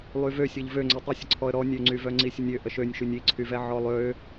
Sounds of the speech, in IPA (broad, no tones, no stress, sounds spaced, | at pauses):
lˠ y v ø sʲ ɔ ʎ v ø ŋ͡ǀ ø tˤ i sʲ ə ǀʰ ɔ ə̯ ɾ ɔ nʲ ø ŋ͡ǀ y v œ ŋ͡ǀ i sʲ ə nʲ ø ʔ ə ʃ ø nʲ ʃ y nʲ i ǀʰ y v ɛ ʕ ɔ lˠ ø